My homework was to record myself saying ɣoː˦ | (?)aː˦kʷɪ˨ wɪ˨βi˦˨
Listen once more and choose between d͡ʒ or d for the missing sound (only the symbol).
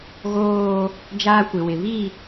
d͡ʒ